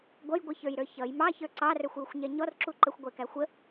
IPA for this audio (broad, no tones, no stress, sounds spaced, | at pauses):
ɡʷ ʌ j ɡʷ i ç ə˞ j ɾ ə˞ ç ʌ j m ɑ ç ə˞ ǀ ɑ r ə˞ xʷ j u xʷ ɲ ɛ ɲ ɔ r ǁ u ǃ ə xʷ ɡʷ ɛ k æ xʷ ə